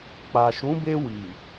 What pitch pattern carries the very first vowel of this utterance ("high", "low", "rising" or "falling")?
low